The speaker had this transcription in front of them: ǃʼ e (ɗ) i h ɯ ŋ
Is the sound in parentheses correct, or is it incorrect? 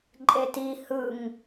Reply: incorrect: t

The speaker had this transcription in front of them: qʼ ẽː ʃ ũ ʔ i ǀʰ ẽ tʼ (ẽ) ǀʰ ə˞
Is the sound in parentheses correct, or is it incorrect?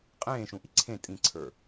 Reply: incorrect: ĩ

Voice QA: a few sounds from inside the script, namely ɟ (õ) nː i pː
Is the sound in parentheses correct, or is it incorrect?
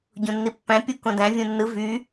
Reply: correct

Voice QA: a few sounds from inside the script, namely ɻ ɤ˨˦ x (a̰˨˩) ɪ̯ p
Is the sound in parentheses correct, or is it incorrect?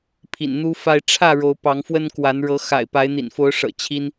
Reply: correct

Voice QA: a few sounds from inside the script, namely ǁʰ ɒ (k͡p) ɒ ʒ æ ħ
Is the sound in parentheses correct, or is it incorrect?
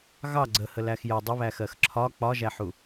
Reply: correct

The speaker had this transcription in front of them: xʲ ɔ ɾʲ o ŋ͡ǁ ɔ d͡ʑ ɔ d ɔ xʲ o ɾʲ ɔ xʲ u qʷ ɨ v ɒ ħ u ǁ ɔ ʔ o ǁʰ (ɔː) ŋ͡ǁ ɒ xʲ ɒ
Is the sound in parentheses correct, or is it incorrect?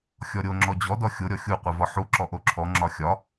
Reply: incorrect: ɔ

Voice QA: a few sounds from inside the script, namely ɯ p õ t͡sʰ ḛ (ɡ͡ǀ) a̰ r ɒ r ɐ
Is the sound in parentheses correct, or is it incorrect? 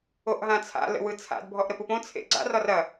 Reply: correct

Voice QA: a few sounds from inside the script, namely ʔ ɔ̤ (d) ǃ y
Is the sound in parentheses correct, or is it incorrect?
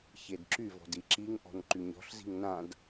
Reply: incorrect: n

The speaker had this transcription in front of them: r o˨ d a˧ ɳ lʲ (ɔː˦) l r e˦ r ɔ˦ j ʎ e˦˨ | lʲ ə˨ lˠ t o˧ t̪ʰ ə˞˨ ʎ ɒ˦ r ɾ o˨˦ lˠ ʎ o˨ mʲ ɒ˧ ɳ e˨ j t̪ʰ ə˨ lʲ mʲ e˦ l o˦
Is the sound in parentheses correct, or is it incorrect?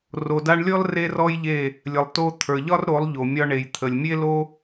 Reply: incorrect: ɔ˦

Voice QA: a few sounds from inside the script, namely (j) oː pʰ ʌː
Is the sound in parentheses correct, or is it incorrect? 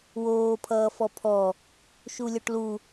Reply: incorrect: w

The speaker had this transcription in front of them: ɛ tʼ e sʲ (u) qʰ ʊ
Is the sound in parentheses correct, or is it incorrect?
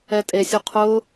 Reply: correct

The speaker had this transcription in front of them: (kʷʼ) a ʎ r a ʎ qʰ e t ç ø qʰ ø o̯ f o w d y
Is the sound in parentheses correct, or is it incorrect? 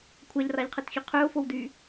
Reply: incorrect: kʷʰ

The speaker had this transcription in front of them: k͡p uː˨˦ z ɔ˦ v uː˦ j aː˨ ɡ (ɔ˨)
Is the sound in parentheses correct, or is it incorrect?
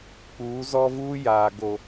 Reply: incorrect: o˨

